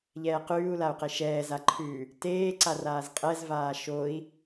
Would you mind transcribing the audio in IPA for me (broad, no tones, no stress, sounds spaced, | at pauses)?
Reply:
ʎ ɛː q ʉː u̯ l a u̯ q e ʃ ɛː z a ǃʰ ʉ | t eː ǀ a r aː z qʼ ɛ z v aː ʃ o i̯